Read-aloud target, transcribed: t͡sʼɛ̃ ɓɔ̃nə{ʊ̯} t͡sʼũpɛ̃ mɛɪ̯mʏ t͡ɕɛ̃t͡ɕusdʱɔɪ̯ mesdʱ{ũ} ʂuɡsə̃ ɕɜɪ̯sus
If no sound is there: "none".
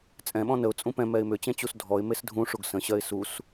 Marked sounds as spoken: ʊ̯, ũ

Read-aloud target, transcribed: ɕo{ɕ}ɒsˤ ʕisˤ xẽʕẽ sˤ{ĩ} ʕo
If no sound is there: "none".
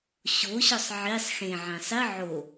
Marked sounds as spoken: ɕ, i

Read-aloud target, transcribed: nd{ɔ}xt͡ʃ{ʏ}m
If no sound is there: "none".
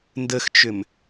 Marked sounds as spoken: ə, ʏ

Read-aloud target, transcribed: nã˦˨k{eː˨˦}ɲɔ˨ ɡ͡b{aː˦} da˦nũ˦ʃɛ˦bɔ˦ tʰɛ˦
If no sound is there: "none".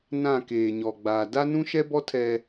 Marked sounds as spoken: eː˨, aː˨

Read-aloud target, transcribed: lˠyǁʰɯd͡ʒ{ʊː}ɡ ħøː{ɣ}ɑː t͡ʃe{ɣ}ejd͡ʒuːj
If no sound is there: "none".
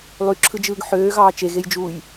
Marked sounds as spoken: ɯː, ɣ, ɣ

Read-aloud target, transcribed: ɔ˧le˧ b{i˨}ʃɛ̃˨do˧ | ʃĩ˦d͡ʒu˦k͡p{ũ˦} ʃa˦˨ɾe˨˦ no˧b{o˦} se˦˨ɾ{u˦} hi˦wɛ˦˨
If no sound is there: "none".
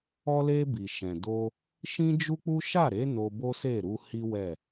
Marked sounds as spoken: i˨, u˦, o˦, u˧

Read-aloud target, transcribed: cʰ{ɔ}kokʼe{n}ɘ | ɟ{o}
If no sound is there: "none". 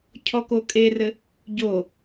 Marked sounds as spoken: ɔ, r, o

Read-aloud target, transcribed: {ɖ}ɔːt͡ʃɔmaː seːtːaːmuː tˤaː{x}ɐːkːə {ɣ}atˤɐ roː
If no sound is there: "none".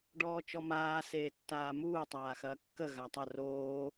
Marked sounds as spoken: ɖ, x, ɣ

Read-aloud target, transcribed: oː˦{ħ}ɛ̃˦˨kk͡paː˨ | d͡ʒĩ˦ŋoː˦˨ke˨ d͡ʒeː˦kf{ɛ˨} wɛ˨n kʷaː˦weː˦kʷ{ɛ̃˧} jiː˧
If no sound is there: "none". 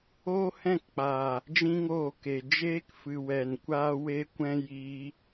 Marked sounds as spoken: h, ɨ˨, ɛ̃˦

